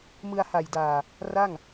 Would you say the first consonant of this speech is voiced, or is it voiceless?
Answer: voiced